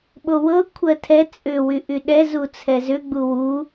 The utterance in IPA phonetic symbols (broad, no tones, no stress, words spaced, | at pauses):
ɓowɤ kʷʰɜtʰɛ t͡sʼʏ wyʔyɗɛzu t͡sʰɛzʏɡ͡bu wu